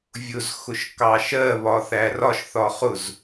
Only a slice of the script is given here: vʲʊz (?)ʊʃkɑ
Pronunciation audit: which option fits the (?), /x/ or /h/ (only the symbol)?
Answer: x